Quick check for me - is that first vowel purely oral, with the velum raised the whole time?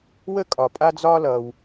yes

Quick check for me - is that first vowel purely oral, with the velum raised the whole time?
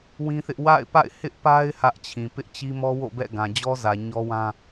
no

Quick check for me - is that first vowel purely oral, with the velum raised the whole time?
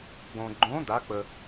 no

